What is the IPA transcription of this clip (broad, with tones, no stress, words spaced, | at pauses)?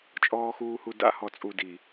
t͡ʃʼɔː˨xuː˨hu˨ da̰˦hɔ˨t͡sʼu˨di˨